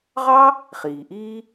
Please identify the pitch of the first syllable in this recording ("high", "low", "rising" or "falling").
high